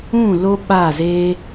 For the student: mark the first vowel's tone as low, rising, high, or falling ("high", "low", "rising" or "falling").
falling